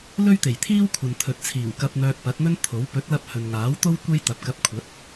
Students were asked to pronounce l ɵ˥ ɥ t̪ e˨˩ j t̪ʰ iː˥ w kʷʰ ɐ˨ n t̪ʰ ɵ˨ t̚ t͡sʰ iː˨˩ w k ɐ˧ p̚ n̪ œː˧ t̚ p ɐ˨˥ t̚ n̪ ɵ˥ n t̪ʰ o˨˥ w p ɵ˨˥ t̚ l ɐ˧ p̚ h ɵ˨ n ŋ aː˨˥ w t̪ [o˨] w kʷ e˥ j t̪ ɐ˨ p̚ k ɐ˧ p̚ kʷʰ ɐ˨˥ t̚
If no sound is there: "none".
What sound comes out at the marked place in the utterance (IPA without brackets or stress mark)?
o˥